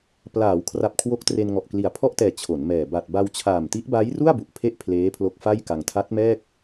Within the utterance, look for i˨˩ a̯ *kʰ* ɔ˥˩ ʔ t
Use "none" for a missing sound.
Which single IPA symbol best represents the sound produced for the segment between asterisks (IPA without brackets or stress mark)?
pʰ